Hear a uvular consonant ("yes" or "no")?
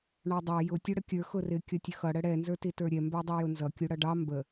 no